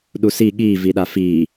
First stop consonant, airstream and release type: implosive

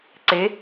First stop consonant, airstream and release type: click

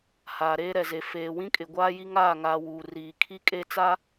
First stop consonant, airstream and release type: ejective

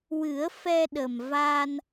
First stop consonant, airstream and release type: implosive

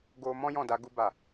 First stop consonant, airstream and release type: plain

